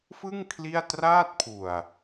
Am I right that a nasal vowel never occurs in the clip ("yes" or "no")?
yes